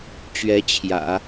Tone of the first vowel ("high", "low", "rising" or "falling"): rising